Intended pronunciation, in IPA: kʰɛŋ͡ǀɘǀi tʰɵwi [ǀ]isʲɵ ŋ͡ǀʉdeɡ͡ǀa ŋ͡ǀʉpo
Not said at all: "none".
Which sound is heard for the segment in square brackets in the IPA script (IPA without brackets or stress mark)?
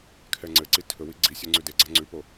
ɡ͡ǀ